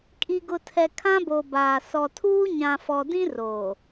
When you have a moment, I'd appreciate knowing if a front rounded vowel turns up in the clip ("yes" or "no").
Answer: no